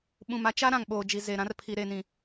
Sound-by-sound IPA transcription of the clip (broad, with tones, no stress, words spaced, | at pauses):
ɓũ˨ma˦t͡ʃa˦ ɾã˨ŋɓoː˨d͡ʒi˨ ze˨ ɾã˦rpʰi˨ ɾe˨nĩ˨